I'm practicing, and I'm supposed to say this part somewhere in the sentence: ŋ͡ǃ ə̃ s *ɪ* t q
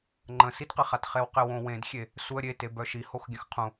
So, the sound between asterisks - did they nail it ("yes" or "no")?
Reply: no